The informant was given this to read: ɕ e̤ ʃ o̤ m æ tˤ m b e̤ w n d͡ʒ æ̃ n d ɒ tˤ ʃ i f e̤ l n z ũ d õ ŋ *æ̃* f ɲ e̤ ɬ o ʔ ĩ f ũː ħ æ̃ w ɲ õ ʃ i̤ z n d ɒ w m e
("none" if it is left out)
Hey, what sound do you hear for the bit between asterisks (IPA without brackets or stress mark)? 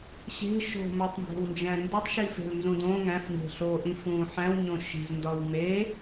æ̃